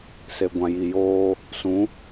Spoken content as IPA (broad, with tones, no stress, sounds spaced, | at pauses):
s e˨ ɡʷ ã˨ j i˨ j oː˦ | s ũ˨˦